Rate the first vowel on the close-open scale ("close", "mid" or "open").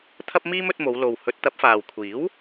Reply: open